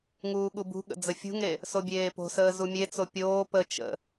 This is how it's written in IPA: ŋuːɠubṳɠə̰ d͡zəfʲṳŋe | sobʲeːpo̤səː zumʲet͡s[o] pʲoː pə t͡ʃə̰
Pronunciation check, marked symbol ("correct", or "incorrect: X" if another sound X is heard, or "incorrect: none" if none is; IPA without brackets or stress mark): correct